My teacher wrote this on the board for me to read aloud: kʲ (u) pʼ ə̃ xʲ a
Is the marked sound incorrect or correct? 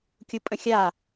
correct